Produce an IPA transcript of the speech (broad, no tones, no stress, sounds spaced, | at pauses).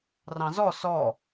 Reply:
r ɑ̃ z ɔ s ɔ